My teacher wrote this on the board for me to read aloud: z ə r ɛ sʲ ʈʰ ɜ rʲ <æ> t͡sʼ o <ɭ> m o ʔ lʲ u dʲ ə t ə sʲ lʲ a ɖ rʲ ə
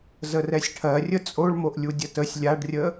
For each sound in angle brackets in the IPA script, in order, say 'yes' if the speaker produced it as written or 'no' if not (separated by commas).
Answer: no, yes